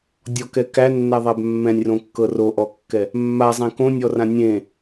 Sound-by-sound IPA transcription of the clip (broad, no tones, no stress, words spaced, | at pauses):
dʲɔkɛ kænːæðˤæb mːɛ̃nʲrõkːɤ roʔɔkːɛ | mːazˤẽ kõnʲɔrã nʲẽ